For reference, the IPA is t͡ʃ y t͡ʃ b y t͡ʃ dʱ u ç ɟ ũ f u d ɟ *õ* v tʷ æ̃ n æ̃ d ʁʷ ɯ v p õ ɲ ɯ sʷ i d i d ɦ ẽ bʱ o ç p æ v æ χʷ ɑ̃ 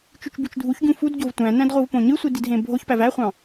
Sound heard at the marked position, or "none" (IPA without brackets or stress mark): o